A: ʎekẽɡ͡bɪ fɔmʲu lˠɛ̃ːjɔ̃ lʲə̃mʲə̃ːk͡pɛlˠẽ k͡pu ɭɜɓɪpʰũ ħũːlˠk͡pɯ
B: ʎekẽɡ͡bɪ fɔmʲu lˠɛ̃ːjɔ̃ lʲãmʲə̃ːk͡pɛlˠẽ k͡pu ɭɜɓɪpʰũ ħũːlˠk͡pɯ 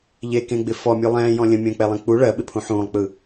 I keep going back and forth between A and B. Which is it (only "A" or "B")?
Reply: A